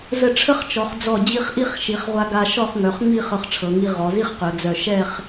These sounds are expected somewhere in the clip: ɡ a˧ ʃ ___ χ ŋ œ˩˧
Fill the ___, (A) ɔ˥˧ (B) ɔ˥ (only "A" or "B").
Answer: A